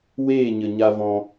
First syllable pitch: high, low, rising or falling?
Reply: falling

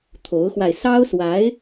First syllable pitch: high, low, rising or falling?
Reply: rising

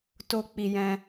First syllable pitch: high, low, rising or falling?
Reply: low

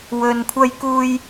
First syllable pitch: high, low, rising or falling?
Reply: low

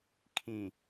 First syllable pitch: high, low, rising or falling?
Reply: low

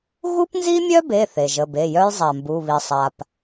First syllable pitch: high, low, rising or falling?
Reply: high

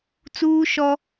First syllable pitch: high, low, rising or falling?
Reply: high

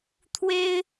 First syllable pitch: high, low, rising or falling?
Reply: high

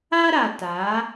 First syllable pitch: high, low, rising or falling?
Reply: high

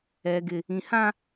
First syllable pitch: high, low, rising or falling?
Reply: low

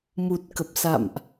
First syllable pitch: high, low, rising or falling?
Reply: low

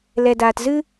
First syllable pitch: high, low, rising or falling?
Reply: low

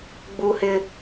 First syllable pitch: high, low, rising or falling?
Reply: high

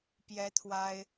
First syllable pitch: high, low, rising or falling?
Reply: high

